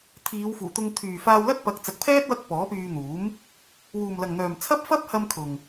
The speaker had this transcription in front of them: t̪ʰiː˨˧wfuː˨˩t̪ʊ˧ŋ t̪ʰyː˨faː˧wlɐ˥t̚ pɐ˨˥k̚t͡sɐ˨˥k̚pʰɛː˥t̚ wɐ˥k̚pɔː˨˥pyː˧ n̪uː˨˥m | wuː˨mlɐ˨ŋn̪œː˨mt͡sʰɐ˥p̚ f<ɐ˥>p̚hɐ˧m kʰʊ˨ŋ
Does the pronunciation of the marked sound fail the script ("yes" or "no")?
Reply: no